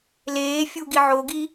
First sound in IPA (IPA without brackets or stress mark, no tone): l